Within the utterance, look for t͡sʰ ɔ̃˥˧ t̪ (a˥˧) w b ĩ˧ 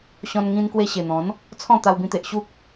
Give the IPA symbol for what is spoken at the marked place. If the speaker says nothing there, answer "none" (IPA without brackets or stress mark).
a˧